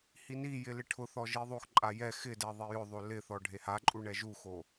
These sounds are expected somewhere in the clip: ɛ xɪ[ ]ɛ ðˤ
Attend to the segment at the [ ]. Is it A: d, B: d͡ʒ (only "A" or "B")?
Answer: A